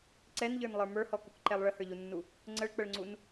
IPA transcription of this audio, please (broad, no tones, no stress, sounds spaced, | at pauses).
ǀ ɛ n ʎ ə˞ n lˠ ə˞ m ə˞ h ɔ k u k ǃ ɛ lˠ ɭ ə h ə˞ ʎ u nː u | ŋ͡ǀ ə ɭ k͡p ə ɭ ŋ͡ǀ u n